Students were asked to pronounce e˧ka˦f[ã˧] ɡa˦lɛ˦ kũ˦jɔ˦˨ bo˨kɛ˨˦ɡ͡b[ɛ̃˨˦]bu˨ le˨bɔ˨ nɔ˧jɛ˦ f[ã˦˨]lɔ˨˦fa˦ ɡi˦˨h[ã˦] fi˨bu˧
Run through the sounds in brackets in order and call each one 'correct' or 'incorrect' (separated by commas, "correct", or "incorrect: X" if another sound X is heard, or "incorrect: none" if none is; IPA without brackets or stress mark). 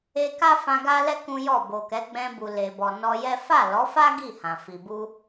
correct, incorrect: ɛ̃˧, incorrect: a˦˨, incorrect: ã˨